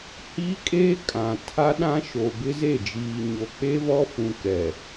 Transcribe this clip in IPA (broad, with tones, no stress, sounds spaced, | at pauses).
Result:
h iː˦ kʼ eː˦ kʼ ã˨ tʰ a˦ ɗ ã˦ ʃ o˨ b ɪ˦ z e˦˨ d͡ʒ iː˨ ɲ o˨ k͡p e˦ v ɔ˦ f ũ˨ k ɛ˨